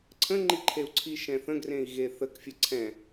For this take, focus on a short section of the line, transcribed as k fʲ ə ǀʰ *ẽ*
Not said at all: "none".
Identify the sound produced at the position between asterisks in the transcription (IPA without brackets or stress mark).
ɛ̃